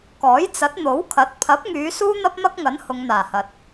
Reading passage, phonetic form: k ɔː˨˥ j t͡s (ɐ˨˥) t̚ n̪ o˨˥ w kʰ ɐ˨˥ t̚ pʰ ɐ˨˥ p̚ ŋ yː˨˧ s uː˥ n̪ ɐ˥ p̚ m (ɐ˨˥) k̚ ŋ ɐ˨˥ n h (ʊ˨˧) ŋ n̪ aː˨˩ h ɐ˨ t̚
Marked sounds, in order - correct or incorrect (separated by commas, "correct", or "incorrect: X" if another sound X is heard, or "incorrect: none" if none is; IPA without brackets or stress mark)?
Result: correct, incorrect: ɐ˥, correct